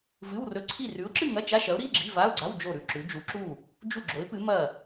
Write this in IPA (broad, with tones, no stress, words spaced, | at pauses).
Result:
vɨ˧˥˧wrɵ˧˥˧ǀʰi˥˨ rʉ˨˥ʊ̯ǁɨ˥˨ŋɐ˧˥˧ t͡ʃa˧˥˧ʃɐ˨˥ʊ̯ ɾi˧˥˧ɡ͡ǁi˧˥˧va˧˥˧ʊ̯ɡ͡ǀa˧˥˧w d͡ʒo˥˨ɾʉ˥˨ǁʉ˨˥ d͡ʒu˨˥ǁu˥˨ | d͡ʒu˥˨ɡ͡ǁo˨˥ɪ̯pɨ˨˥ mɐ˥˨